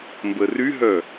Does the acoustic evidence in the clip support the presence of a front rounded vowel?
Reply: yes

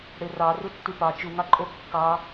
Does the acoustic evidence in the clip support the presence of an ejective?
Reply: yes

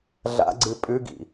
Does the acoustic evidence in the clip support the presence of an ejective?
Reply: yes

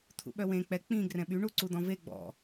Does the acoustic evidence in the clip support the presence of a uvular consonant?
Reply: no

